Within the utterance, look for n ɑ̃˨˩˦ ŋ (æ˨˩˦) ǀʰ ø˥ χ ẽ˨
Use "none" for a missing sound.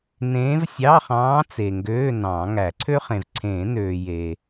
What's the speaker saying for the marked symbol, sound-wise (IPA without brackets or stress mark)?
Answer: æ˨˩˦